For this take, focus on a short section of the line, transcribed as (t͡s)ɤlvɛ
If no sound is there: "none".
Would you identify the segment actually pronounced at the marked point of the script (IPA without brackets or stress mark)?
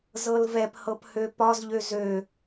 z